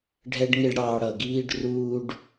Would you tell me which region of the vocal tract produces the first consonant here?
retroflex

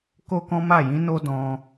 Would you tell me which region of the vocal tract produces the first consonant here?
velum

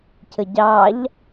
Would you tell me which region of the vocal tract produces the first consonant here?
palate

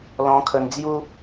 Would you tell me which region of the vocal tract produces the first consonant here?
tongue tip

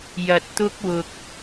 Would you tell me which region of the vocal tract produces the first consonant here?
palate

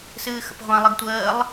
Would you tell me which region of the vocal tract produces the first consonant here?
tongue tip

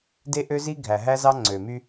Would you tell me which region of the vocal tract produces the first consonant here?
tongue tip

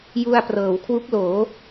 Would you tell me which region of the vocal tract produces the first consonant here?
palate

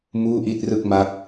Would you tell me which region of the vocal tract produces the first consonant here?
lips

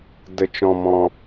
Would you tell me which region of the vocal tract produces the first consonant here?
tongue tip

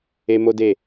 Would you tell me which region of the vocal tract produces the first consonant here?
lips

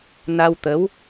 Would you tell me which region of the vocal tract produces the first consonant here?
tongue tip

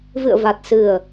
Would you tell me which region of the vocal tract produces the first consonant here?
lips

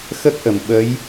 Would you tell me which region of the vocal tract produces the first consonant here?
velum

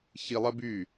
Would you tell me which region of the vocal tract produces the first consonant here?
palate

